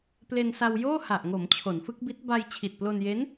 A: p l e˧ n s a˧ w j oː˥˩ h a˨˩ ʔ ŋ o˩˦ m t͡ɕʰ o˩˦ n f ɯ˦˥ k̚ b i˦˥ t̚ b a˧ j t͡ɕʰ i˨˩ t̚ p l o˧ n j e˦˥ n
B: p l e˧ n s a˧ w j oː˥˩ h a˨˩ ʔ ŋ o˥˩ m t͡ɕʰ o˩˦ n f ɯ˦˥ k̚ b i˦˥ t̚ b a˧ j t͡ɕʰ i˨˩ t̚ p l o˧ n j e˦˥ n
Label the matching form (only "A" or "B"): A